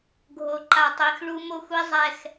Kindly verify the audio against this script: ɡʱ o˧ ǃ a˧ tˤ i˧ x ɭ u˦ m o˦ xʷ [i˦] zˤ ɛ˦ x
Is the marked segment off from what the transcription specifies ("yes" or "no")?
no